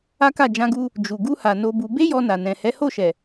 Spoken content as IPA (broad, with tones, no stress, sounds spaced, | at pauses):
a˦ k a˦˨ d͡ʒ ã˧ ɡ u˧ | d͡ʒ u˨ ɡ u˧ h a˨ n o˧ b u˧ b e˦ j ɔ˧ n a˨ n ɛ̃˨ h ɛ˨˦ h o˦˨ ʃ ɛ˨